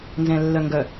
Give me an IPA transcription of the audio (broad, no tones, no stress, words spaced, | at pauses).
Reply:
nzɛ̃lːœŋɡœ